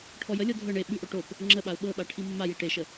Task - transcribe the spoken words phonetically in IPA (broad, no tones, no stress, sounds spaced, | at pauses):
ʈʰ ɔ j ə lʲ ɔ dʱ ɤ ɳ e ɓ ʉ ʔ o ʈ o p | ŋ͡ǁ ə ɓ a ʊ̯ ɓ ɤ ɓ a ʈʰ i mː a j i ʈ e ʃ ə